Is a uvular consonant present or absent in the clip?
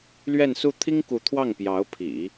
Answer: absent